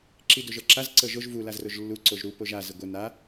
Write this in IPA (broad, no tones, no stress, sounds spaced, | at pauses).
ǁ i d o ʒ ɤ ǁ a z ǀ ɤ ʒ o ʒ v u l a z r o ʒ lː u ǀ o ʒ ɾ u p o ʒ a z ə ɡʷ ə n a